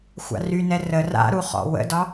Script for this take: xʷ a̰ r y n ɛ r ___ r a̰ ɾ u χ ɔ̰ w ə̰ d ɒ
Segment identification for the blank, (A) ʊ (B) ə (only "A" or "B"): B